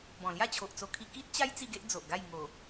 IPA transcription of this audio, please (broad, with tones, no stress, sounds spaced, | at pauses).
b ɔ̃˨˩ l j a˥˧ t͡ɕʰ o˨ ʔ t͡s o˧ kʰ i˧ k i˦ t̚ t͡ɕ a˦ j t͡s i˥˧ ɡ e˦ ʔ d͡z o˨ ʔ ɡ a˥˧ j ŋ o˨˩